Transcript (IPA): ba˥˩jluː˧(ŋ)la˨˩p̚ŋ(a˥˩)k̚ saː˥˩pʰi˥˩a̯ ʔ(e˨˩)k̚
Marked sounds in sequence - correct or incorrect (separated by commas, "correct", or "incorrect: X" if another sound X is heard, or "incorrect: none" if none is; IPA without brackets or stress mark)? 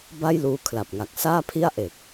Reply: incorrect: kʰ, incorrect: a˨˩, correct